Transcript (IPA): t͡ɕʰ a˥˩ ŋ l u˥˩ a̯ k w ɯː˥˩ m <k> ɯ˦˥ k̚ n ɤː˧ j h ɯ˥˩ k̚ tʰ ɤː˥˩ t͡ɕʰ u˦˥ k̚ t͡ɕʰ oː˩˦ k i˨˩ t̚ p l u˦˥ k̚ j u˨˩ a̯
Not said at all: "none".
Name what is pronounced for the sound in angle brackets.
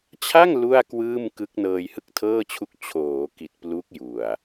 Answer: k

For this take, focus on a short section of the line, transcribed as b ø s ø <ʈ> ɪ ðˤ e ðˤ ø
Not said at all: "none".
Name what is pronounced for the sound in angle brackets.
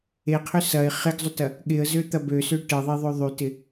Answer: ʈ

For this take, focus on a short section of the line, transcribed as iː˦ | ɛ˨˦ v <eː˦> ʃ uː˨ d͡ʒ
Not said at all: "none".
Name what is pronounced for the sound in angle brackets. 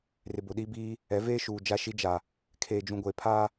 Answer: eː˦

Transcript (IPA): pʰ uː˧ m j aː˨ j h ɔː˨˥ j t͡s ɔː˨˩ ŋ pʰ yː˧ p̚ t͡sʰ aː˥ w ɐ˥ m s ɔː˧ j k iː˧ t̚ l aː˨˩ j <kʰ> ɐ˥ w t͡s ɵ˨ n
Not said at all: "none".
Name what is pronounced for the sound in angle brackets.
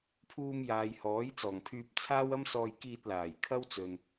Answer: kʰ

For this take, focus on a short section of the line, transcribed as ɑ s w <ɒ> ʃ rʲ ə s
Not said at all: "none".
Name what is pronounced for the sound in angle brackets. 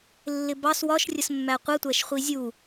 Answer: ɒ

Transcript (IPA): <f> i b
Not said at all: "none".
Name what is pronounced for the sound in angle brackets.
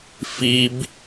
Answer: f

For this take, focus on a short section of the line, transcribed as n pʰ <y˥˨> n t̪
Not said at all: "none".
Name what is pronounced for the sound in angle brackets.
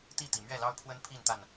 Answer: i˥˨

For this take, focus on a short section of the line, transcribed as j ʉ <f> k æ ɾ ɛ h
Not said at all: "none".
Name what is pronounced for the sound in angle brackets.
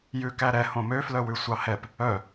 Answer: none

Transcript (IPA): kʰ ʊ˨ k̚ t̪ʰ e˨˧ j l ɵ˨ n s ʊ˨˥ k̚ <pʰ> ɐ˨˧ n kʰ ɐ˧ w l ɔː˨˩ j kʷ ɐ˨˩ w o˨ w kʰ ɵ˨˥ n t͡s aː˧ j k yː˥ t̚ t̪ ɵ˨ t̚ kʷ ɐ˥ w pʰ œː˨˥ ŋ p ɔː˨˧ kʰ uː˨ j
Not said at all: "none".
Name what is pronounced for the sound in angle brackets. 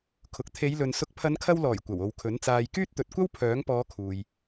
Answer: pʰ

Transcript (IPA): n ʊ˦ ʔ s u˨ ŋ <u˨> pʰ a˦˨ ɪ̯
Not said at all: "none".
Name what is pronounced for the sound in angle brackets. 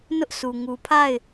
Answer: u˨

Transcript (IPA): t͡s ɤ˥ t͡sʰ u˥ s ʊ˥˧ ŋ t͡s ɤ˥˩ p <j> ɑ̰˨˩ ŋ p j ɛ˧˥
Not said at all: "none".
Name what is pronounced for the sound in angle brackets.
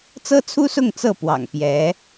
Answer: w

